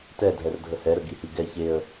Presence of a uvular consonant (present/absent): absent